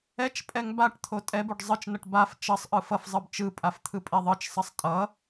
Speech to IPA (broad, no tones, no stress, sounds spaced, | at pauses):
ɛ t͡ʃ pʼ ɛ ŋ b a ʈ t̪ʰ o tʼ ɛ b o ɖ zˤ ɯ t͡ʃ n ʌ ʈ b a f t͡ʃ ʌ sˤ ʔ ɯ f ʌ f zˤ ɯ b t͡ʃ ɯ pʼ a f t̪ʰ ɯ pʼ e ðˤ ɯ t͡ʃ sˤ ʌ sˤ tʼ ʌ